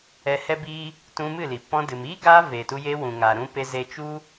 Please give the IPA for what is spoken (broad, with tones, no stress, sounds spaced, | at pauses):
ɛ˧ h ɛ˦ b iː˦ | t ũ˧ m ɨ˦˨ l i˨ p ɔ̃˧ d ɨ˨ m iː˦ ɡ aː˧ v e˨ t u˧ j e˧ w ũ˨ ŋ aː˨ ɾ ũ˧ p e˧ z e˧ t͡ʃ u˦